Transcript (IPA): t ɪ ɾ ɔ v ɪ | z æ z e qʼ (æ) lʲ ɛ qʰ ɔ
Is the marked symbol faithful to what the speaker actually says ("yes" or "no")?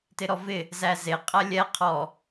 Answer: yes